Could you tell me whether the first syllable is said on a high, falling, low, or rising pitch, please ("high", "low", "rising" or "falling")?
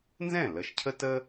falling